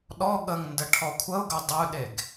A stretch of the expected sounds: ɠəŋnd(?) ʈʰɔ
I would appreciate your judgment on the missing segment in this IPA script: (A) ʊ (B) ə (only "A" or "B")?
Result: B